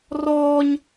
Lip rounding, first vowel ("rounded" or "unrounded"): rounded